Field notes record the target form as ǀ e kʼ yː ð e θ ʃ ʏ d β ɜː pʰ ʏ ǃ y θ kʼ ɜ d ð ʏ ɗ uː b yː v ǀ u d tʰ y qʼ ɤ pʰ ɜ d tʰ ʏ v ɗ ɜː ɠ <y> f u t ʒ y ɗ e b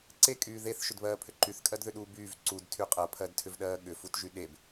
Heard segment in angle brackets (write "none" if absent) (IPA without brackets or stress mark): ʏ